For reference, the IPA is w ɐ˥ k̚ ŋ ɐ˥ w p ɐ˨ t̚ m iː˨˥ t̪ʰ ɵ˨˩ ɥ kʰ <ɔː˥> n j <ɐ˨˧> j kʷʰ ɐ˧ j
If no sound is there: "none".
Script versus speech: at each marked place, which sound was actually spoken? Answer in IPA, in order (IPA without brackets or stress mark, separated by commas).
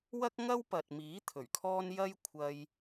ɔː˥, ɐ˥